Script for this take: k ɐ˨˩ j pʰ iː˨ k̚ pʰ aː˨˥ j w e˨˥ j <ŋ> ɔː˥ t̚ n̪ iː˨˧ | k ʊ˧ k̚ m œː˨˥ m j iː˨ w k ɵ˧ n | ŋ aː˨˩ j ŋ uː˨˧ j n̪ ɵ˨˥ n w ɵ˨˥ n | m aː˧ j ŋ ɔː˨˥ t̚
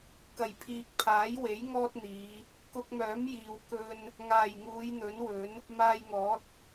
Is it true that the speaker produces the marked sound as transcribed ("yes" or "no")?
yes